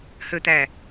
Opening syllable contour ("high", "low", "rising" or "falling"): low